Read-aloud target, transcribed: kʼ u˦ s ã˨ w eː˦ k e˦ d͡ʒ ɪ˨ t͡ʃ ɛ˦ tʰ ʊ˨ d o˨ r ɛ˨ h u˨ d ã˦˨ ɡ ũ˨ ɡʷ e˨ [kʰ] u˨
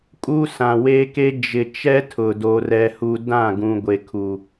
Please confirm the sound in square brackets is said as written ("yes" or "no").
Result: yes